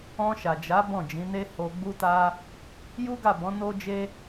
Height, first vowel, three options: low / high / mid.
mid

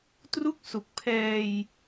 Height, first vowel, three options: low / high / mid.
high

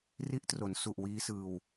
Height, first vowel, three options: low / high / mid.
high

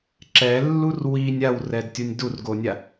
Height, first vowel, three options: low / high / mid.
mid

